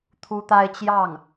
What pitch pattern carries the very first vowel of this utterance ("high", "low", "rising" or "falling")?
high